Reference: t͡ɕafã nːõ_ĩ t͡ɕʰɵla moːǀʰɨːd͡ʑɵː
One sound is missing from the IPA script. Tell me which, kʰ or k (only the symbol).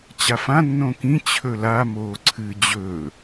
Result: k